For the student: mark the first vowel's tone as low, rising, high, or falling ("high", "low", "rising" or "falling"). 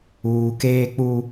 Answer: low